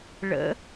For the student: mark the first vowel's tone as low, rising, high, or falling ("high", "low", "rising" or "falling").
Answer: rising